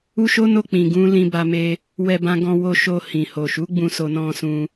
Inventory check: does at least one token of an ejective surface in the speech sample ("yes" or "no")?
no